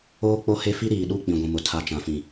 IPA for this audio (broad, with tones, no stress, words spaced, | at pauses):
oː˦k͡po˦he˦fi˦ ɾiː˨ɗu˦˨k͡pĩ˨ ɡʷĩ˨mʊ˨ tʰa˨t͡ʃã˨fĩ˨